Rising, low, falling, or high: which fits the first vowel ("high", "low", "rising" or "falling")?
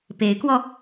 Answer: rising